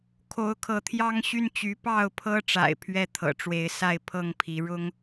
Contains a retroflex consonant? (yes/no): yes